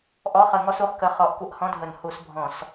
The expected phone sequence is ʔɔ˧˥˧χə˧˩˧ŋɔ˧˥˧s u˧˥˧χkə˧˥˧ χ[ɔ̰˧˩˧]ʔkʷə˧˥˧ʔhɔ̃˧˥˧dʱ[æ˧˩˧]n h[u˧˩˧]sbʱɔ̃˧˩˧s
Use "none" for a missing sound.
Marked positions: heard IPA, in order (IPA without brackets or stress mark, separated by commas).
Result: ɔ˧˩˧, ə˧˩˧, u˧˩˧